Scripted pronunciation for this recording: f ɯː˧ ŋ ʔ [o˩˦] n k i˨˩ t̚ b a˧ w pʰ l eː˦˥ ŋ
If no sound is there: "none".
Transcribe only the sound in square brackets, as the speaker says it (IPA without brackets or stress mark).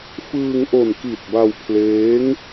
o˨˩